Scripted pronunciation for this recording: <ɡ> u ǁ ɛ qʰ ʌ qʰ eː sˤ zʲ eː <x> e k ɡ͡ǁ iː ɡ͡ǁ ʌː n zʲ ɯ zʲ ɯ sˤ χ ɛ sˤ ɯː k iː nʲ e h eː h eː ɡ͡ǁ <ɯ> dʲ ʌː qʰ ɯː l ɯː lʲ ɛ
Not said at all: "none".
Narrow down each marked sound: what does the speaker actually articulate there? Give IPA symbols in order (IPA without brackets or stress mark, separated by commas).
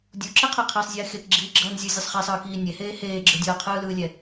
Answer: dʲ, x, ɯ